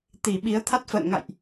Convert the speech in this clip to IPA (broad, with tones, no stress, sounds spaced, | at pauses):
t̪ i˧˩ ɓ i˨˦ ə̯ t̪ʰ a˦˥ t̚ f ə̰ː˧˨ n ŋ a̰˧˨ j ʔ